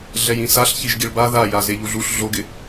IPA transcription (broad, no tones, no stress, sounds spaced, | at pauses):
ɮ ɛ j ĩ s a ɬ ç i ʒ ɡ i ɭ b a ð a j a z e ʎ u ɮ u ɬ ɮ o ɡ ɪ